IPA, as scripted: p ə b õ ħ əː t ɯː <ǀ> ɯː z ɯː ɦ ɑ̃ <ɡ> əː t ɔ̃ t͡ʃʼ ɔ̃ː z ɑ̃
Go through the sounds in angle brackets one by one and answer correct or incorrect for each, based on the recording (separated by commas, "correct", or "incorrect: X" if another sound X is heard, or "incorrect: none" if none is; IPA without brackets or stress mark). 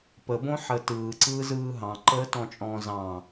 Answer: correct, incorrect: ǃ